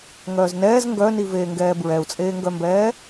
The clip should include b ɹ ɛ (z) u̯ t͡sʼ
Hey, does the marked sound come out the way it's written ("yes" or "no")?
no